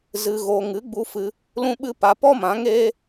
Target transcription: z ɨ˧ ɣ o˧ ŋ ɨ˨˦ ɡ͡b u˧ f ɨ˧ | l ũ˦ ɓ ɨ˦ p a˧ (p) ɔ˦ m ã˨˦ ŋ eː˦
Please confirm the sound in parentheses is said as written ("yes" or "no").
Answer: yes